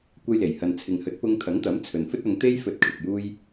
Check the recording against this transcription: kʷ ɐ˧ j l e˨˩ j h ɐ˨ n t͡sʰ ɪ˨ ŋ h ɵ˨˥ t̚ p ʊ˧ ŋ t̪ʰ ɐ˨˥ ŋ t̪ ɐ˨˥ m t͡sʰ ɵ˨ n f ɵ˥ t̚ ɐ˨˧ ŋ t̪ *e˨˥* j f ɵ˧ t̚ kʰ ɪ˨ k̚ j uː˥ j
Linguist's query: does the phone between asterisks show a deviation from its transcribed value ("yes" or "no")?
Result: yes